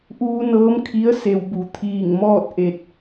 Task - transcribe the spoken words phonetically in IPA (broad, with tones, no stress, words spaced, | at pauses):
ʔuː˧nɤː˧˥mkʰi˧˥ə̯ se˩wbu˩˧ t̪ʰiː˧˩ŋmɔː˥˨t̚ ʔe˧t̚